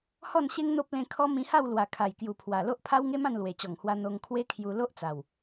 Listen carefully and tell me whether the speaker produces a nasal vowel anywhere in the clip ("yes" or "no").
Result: yes